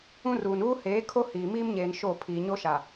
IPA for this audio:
ũ˦ r uː˨ n uː˦ h eː˨˦ kʰ o˦ h iː˨ m iː˦ m ɲ eː˨ n ʃ o˦˨ pʰ iː˨ ɲ o˦ ʃ a˨

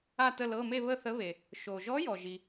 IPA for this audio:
a˥˧ t ə˥˧ l ɤ˧˥˧ m e˥˧ β ə˥˧ θ ə˧˥ β e˨ | ʃ o˨ ʒ ɔ˧˥ j ɔ˨ ʒ i˨

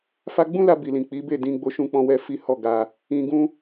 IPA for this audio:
f a˧ ɡ͡b ũ˦ l a˧ b i˨ l ĩ˨ k͡p i˨˦ b e˦˨ d ĩ˧ ɡ͡b o˧ ʃ ũ˧ k͡p ɔ̃˧ w ɛ˧ f i˦ h ɔ˦˨ ɡ a˧ | ĩ˧ ɡ ũ˦

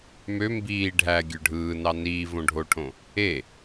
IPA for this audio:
m ø m b iː ɖʱ æ ɡʲ ø ɖʱ ɯː n ɑ n iː v õ ɖʱ o ʈʰ õ | e

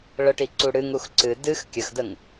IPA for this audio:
ɭ ə ʈ i ǀ u ɽ ɨ ŋ u x ǀ ɨ d ɨ x kʲ ə x d ə ŋ

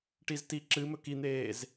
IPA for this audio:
ʈ i z t i ǁ ɨ m ɵ k i n̪ eː z

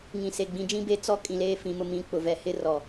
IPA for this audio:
ŋ ĩ˨ s e˨ ɡ͡b ĩ˨˦ d͡ʒ ĩ˦ b e˦ t͡s ɔ˦ kʼ ĩ˨ l eː˦ f ĩ˨ m ʊ˨ m ĩ˨ k͡p ʊ˨ v ɛ˦ h ɪ˦ r ɔ˨

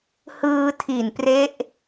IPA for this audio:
h ɯː˧ tʰ i˨˩ n p r e˦˥ ʔ

